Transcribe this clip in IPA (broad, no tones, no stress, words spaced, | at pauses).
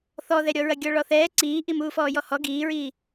θɔðɛɾʲɔ ɹɐɡʲɔɭɔθɛː ǀiːʔimuːfɔː jɔhɔ ɡiːɹiː